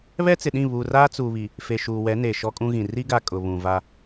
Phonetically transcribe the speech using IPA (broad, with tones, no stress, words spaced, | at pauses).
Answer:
βɛ˦t͡sɪ˨ɗĩ˦˨ βuː˨raː˦t͡suː˨βi˨ | fe˨ʃuː˨ wɛ˨˦ neː˨ʃɔ˦kʼũ˦ɣĩ˨ ri˦ɡa˨ kʼʊ˨βũ˨va˦